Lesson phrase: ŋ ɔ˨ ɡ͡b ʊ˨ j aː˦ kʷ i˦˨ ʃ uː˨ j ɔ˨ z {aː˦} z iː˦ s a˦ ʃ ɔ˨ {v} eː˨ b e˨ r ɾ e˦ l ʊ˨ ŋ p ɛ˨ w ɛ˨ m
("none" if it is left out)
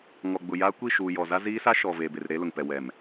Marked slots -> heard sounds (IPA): a˦, v

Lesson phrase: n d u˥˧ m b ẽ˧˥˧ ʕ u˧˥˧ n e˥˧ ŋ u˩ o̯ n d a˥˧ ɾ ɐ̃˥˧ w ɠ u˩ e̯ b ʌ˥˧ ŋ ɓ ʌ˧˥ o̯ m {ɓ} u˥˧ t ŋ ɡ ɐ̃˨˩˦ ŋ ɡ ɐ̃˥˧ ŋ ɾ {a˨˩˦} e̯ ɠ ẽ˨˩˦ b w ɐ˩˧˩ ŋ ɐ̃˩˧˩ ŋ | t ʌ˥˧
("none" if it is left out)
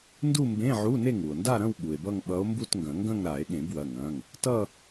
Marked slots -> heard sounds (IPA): b, a˨˩˦

